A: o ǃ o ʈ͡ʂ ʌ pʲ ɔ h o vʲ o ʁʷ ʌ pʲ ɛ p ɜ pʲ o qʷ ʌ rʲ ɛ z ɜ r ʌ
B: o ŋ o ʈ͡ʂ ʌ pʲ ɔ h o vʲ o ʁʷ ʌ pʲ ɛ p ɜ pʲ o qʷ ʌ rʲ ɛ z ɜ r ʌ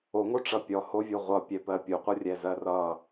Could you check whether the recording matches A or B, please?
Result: B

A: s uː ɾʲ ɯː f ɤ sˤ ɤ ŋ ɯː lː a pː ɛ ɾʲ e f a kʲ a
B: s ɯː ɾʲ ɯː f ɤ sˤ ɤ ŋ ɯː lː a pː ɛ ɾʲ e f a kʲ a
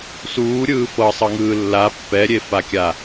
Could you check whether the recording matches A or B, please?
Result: A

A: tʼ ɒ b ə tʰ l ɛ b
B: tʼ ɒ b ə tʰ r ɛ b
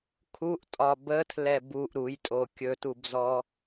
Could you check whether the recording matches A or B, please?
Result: A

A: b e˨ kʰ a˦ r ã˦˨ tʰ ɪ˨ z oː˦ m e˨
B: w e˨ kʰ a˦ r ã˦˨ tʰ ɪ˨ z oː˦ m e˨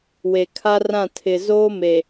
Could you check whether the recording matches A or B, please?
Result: B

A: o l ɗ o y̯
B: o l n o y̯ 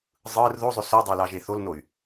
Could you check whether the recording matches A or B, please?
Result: B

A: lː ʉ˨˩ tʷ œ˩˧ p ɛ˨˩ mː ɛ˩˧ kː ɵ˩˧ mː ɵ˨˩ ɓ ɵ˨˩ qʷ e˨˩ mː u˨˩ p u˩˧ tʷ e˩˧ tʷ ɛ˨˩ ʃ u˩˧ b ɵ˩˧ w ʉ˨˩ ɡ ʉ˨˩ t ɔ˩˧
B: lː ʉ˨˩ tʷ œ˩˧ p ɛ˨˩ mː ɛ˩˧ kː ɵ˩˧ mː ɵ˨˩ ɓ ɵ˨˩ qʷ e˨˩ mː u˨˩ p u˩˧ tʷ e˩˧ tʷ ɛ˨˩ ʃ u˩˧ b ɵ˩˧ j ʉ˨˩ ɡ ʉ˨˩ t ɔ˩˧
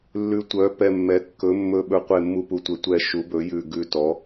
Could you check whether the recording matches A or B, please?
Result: B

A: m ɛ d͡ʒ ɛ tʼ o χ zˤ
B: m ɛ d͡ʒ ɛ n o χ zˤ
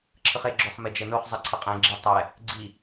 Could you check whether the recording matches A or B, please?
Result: B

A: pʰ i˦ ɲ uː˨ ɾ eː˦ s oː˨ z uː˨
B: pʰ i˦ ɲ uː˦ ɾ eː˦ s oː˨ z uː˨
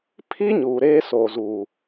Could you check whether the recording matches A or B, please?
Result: A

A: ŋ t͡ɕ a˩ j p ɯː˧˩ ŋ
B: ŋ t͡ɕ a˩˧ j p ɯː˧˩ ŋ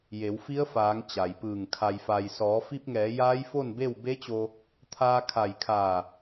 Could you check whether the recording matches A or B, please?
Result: A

